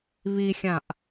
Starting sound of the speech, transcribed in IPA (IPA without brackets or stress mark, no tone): β